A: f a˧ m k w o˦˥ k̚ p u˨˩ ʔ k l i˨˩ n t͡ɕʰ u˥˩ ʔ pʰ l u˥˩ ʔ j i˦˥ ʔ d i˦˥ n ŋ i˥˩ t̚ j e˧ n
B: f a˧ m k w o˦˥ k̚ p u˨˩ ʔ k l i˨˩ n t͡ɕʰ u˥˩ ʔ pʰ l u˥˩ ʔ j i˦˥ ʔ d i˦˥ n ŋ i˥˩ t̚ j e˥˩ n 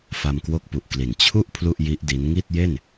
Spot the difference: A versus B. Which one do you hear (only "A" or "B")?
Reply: B